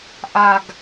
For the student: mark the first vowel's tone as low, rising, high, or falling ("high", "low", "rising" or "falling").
low